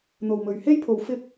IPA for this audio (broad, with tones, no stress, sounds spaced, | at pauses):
n̪ o˨ w m ɵ˨ ɥ h e˥ j pʰ o˨˧ w f ɪ˥ k̚